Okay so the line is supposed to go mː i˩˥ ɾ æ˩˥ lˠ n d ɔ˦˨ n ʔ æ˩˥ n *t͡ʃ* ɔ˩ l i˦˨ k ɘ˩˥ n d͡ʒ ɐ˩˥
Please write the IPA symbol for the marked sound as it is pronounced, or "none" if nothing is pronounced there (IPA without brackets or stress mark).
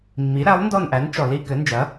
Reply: t͡ʃ